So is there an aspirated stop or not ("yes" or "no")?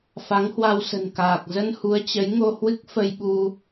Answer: no